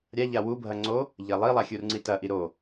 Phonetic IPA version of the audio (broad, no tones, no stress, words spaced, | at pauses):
ɾʲaʎa wubʱɐ ŋ͡ǀo | ʎɐlˠilˠa xʲurŋ͡ǀitɐʔi ɾo